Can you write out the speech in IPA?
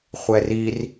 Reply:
χʷ ɛ r i r

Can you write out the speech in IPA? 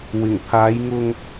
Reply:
w ɪ˨˩ ŋ pʰ aː˨˧ j ŋ ʊ˧ ŋ

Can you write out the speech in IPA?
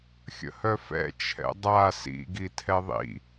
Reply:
xʲ ə̰ h œ f ɛ̰ t͡ʃʰ ɛ̰ dˤ a s ḭ ɡ i tʰ ɛ ðˤ ḭ

